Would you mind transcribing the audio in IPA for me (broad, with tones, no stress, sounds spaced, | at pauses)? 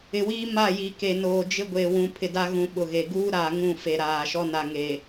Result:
ɪ˨ w iː˦ m a˦˨ j i˨ k e˨ n oː˨ d͡ʒ ɪ˦ ɡʷ e˨ w ũ˨ pʰ ɪ˨ d a˦ ɣ ũ˨ ɓ ʊ˨ ɣ e˨ ɡ uː˦ ɾ aː˨ ŋ ũ˦˨ f e˨ ɾ aː˨ ʃ ɔ˦ n a˨ ŋ e˨